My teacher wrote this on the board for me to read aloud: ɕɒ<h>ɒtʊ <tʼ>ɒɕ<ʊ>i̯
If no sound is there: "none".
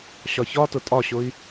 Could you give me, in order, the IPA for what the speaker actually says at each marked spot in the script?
ç, tʼ, ʊ

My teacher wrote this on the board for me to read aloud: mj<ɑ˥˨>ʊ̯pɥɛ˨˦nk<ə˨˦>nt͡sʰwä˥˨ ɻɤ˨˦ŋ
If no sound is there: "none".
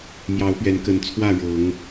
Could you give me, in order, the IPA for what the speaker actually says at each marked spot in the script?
ɑ˨˦, ə˨˦

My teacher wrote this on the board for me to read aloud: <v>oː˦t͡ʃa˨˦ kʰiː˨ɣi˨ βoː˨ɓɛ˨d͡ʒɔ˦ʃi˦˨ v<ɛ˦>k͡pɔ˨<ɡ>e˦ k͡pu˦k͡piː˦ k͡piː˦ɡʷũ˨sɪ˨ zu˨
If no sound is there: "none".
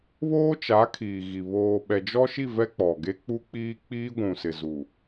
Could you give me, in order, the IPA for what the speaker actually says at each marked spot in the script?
β, ɛ˦, ɡ

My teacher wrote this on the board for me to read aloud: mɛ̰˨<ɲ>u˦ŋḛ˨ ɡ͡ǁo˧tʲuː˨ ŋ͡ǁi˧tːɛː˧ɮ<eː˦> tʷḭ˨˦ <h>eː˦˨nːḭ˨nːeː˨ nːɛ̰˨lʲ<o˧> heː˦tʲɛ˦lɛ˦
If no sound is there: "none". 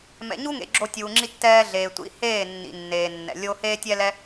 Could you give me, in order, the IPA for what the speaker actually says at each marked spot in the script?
ɲ, eː˨, h, o˦

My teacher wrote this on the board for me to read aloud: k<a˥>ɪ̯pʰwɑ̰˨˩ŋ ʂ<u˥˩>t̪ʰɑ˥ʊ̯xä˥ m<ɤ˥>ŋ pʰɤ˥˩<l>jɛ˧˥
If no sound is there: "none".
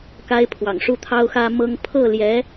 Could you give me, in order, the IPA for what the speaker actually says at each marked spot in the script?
a˥, u˥˩, ɤ˥, l

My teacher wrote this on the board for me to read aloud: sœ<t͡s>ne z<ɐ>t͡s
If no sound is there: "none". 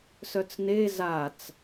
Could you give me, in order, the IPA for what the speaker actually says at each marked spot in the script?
t͡s, a

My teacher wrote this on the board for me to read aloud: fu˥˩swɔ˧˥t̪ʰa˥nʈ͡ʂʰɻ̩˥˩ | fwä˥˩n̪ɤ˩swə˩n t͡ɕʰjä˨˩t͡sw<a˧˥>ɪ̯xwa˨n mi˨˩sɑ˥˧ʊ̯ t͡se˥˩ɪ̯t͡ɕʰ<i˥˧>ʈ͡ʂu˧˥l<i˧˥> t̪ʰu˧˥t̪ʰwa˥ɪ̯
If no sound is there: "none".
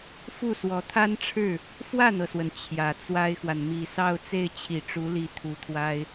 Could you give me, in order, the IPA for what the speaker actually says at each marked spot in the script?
a˥, i˨˩, i˧˥

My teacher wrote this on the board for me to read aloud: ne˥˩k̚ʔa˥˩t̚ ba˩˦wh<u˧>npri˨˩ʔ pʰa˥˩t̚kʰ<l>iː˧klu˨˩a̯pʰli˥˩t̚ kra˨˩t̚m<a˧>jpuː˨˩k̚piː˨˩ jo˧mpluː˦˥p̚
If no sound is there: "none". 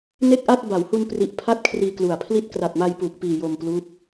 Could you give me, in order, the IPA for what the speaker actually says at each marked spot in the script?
u˧, r, a˧

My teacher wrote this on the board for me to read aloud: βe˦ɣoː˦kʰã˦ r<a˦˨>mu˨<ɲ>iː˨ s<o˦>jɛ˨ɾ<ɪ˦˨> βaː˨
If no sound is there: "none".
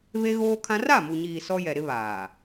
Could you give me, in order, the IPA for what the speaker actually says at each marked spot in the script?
a˦˨, ɲ, ɔ˦, ɪ˦

